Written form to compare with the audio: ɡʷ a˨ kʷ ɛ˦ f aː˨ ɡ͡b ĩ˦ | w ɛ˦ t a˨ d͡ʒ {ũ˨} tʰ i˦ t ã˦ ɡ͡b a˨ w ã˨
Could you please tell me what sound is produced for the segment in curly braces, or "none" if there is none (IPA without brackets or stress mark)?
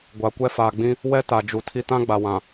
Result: u˨